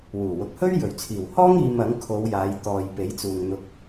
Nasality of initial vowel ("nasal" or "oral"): oral